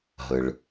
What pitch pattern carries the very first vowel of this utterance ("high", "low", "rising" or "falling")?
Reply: low